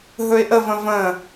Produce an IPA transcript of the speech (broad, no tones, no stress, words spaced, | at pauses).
ɦɵɪ̯ʔəvə̃ və̃